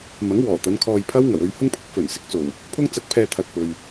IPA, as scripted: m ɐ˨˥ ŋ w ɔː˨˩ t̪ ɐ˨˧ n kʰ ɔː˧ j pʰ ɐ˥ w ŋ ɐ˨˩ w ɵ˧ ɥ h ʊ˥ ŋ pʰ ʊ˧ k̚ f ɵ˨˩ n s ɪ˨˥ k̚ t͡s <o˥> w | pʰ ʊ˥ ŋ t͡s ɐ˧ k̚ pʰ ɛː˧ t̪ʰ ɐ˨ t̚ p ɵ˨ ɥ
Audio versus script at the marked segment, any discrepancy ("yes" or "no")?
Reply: yes